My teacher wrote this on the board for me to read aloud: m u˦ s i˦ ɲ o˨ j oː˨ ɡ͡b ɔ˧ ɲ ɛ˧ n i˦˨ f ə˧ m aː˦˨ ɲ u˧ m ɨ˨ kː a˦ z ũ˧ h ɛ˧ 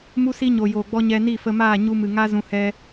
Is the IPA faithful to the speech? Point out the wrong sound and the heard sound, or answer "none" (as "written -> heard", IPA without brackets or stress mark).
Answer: kː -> ŋ